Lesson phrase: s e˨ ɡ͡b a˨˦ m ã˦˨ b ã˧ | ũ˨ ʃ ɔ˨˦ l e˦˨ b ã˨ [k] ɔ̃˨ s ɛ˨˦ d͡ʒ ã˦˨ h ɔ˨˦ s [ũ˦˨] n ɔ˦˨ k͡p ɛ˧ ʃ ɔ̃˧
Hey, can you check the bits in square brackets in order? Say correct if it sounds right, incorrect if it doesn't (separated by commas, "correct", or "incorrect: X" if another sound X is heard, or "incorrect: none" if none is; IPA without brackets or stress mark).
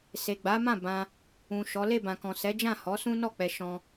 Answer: correct, incorrect: ũ˦